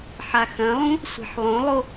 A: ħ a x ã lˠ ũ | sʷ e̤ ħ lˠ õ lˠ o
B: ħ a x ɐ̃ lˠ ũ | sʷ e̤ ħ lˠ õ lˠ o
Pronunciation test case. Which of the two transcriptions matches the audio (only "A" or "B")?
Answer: B